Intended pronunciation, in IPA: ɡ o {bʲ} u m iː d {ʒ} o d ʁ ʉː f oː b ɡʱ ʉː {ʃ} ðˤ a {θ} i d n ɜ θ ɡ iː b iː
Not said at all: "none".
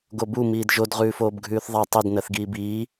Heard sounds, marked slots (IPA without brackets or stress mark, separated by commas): b, ʒ, θ, tˤ